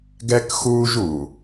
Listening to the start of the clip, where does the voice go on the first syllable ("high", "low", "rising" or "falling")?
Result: high